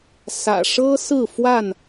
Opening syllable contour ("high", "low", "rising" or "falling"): low